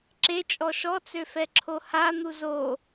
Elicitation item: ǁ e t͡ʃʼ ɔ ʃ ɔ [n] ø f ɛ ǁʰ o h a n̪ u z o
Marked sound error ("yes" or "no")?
yes